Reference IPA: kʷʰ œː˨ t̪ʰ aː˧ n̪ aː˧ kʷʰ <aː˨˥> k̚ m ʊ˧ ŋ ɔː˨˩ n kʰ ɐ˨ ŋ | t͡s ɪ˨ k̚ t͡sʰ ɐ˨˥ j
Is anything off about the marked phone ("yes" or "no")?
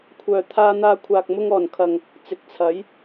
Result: yes